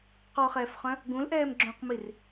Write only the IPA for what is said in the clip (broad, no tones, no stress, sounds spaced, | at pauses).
q ɔ χ ɛː f χ œ̃ | ɡ ũ l ʔ ɛː m ɡ͡ǁ õ q m i r